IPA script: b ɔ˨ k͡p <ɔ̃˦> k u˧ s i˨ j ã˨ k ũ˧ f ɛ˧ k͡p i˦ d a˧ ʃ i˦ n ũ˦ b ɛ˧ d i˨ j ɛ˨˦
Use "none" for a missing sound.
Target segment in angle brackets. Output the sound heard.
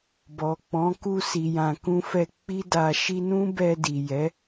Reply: ɔ̃˨˦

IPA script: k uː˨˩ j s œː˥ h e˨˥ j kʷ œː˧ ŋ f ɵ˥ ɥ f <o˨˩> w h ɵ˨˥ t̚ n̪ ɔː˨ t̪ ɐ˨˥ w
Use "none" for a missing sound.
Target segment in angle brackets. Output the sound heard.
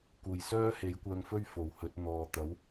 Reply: o˨˩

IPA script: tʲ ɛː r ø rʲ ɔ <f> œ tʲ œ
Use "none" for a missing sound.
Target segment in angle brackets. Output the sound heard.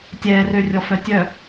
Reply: f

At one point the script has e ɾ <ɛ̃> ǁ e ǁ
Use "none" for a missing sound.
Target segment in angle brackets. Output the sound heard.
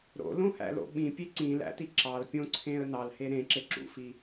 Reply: ẽ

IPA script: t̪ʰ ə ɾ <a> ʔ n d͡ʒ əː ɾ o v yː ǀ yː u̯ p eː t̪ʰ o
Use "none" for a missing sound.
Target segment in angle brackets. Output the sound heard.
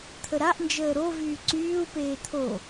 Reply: a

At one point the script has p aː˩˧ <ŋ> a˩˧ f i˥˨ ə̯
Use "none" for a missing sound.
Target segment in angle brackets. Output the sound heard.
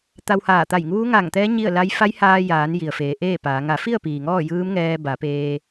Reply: ŋ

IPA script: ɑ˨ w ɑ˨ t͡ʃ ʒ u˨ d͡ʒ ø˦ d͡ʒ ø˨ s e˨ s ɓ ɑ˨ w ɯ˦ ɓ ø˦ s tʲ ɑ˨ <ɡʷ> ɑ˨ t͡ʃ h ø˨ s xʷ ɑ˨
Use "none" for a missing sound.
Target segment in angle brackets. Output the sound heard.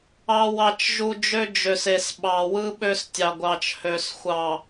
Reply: ɡʷ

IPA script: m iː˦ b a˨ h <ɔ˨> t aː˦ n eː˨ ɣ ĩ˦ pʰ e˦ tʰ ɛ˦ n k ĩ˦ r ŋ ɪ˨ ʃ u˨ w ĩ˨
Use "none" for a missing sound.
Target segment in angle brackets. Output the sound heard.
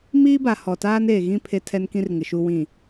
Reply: ɔ˨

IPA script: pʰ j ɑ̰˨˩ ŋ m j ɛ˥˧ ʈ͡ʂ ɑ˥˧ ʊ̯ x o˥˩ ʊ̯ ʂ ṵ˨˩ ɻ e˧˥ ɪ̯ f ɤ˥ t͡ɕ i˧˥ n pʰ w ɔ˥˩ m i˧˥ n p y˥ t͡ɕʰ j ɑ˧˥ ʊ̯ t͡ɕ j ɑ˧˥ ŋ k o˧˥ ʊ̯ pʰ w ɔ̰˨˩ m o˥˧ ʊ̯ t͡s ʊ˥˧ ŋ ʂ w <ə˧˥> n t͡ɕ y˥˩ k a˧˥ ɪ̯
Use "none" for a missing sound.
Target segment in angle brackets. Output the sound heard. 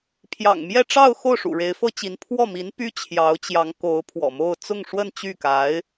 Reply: ə˥˧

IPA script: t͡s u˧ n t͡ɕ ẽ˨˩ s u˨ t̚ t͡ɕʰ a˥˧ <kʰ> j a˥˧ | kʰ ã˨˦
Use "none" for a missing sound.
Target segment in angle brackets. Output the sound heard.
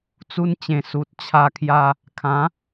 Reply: kʰ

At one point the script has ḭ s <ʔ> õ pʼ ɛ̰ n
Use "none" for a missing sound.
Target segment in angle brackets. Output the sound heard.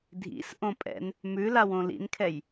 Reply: ʔ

